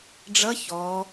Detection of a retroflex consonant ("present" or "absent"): present